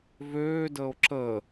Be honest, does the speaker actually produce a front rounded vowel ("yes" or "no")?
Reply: yes